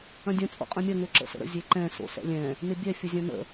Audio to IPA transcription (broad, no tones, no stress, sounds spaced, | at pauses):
ɐ̃ dʲ ɐ̃ t͡sʼ o̰ qʼ ɐ̃ mʲ ɐ ŋ ø ǁ ə̰ s ə̰ ɾ ə̰ zʲ e ǃ ɛ̃ s o̰ s ɛ̰ lʲ ɛ̃ | n ɪ bʲ ɛ fʲ ə zʲ ɐ̃ n ə̰